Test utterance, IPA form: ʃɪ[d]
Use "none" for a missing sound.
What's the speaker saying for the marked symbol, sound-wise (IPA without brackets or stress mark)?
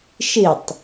tˤ